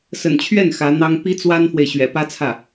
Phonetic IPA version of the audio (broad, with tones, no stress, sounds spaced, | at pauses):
s ə̰˨˩ n t͡ɕʰ ɥ ɛ˥˩ n x ä˧˥ n̪ ɑ˥ ŋ p i˥ t͡s w a˥ n f w e˨ ɪ̯ ɕ ɥ ɛ̰˨˩ p ä˥ t͡sʰ ä˥˩